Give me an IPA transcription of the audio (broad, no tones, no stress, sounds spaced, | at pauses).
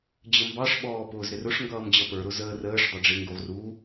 d͡ʑ ə m b ɑ ʂ ɓ ɔː p ʊː z ɾ ɪ r ʊ ʂ ŋ ɡ ʌː m d͡ʑ ʌ p ə˞ ɾ ʊ z əː r əː ʂ dˤ ɪ ɖ͡ʐ ɪ ŋ ɡ u ʁ r u